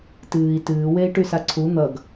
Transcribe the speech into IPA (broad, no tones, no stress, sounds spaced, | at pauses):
t ɨː i̯ t ɨː w e i̯ ʈ y s a ǀʰ u n̪ ʌ ɡ